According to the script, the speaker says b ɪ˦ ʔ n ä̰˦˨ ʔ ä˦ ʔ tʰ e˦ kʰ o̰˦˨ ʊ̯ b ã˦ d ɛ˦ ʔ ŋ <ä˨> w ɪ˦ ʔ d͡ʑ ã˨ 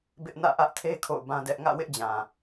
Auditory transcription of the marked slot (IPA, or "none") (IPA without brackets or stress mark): ä̰˦˨